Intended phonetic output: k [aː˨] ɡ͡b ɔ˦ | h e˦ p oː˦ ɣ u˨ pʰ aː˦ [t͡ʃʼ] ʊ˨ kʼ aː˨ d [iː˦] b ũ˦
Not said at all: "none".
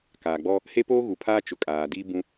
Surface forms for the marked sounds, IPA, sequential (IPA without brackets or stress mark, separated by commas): aː˨, t͡ʃ, iː˦